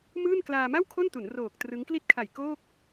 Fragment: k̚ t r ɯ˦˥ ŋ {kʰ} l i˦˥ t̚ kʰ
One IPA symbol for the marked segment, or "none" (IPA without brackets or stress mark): k